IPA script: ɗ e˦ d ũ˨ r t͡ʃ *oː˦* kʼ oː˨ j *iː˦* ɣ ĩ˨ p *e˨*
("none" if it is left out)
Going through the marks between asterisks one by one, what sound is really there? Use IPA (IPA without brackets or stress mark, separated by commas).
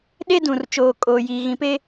oː˨, iː˨, e˦